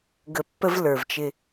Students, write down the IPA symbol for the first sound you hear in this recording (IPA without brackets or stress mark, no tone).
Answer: ɡ